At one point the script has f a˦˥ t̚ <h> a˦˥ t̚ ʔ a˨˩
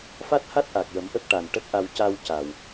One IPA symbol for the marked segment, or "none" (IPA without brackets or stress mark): h